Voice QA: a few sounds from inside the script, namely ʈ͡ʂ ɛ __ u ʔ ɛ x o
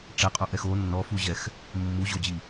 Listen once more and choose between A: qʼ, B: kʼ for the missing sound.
A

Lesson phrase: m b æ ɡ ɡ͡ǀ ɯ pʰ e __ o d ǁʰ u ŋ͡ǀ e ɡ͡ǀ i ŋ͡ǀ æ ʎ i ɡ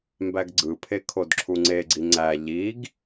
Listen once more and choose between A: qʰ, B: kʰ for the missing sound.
B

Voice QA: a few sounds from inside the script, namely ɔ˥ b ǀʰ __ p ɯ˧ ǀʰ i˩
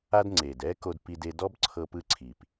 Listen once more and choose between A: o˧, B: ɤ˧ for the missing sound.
B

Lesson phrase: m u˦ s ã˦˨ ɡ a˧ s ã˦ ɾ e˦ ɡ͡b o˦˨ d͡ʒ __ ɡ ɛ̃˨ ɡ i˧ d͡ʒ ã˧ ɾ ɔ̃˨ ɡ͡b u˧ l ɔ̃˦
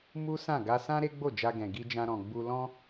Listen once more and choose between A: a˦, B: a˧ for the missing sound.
B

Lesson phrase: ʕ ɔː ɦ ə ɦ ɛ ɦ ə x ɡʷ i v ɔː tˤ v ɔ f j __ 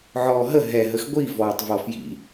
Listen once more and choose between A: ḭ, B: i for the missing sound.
A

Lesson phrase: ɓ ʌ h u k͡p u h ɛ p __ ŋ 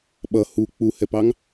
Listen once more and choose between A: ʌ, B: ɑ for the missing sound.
B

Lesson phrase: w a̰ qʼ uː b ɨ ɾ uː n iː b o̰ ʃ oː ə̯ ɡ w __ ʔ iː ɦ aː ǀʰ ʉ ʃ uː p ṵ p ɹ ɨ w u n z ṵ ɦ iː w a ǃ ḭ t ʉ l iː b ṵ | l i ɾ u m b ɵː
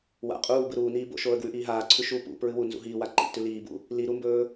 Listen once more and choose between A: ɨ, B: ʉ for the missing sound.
B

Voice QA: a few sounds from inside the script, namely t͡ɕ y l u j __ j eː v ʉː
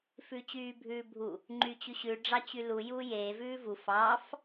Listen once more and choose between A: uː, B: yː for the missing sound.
A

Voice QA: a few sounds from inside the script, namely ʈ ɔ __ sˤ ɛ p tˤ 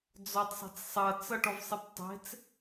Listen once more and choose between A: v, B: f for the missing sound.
A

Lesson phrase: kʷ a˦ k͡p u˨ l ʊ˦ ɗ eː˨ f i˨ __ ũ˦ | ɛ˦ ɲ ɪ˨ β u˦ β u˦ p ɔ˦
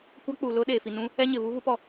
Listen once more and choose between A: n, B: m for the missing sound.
A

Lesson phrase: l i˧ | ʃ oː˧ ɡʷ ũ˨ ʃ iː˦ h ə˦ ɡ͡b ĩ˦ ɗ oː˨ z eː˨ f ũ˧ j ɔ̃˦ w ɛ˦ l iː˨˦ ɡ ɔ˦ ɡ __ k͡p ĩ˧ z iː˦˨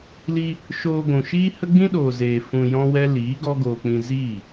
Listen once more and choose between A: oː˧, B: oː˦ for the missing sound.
A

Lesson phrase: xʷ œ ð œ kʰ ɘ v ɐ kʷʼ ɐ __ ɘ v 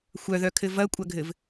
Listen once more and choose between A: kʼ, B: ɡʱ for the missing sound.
B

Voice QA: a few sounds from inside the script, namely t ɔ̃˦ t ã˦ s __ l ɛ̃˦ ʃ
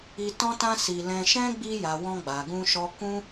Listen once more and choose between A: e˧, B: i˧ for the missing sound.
B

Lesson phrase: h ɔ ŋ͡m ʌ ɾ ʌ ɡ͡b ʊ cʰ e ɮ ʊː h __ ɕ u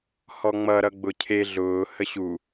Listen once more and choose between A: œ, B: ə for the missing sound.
B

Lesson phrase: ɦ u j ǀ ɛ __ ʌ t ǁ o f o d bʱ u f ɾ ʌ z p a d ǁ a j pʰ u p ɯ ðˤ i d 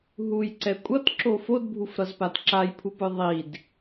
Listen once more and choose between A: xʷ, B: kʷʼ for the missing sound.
B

